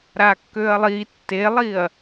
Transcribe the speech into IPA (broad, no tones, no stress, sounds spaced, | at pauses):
ɾ a kː ø ɐ̯ lˠ i tː e lˠ i ɐ̯